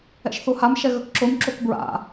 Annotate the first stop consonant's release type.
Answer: plain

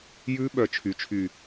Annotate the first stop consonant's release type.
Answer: implosive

